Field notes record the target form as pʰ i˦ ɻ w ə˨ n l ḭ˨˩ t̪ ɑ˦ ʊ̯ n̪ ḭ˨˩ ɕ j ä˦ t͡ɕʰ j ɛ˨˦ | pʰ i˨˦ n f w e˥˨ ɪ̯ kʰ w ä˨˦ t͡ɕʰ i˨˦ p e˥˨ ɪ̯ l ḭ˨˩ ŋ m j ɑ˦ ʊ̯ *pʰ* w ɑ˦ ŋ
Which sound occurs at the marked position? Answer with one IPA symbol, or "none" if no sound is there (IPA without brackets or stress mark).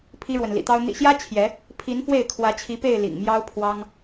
pʰ